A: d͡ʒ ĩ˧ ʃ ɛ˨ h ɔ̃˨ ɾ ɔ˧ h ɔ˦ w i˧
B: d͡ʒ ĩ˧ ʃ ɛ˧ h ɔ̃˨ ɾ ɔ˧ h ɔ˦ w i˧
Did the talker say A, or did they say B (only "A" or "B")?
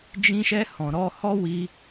B